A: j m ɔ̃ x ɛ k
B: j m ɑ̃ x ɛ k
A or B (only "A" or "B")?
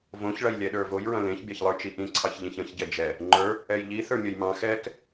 B